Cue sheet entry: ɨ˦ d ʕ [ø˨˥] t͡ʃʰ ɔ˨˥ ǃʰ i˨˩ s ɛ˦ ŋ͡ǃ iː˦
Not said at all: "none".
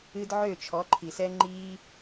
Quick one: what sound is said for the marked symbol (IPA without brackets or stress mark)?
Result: ø˥˩